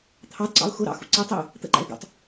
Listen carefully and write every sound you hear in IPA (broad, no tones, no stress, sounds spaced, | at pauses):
t̪ʰ ɑ d ǀ ɑ̰ ʊ̯ x ʊ ɾ ɑ̰ x ṵ ǀ i tˤ i ʊ̯ | t̪ ə̰ ǃ æ̰ ɪ̯ ɡ ṵ tˤ